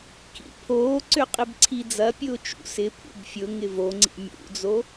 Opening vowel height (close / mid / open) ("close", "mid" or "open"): close